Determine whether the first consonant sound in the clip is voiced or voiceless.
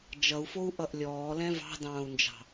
voiced